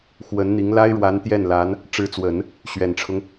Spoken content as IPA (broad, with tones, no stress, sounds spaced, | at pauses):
x w ə˧˥ n n̪ i˧˥ ŋ l a˥ ɪ̯ ɻ w a˧˥ n t̪ j ɛ˥˩ n l a˧˥ n | ʈ͡ʂ ɻ̩˧˥ t͡s w ə˨˩˦ n | ɕ ɥ ɛ˨˩ n ʈ͡ʂʰ ʊ˦ ŋ